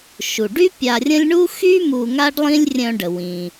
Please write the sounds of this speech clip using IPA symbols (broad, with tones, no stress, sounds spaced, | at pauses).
ʃ u˩ ɖ y˥ pʲ a˧ rʲ ə̃˥ lʲ ɳ u˥ x y˥ m u˧ ŋ a˥ ɖ lˠ ĩ˥ lʲ rʲ œ̃˧ ɖ ə˩ w ĩ˩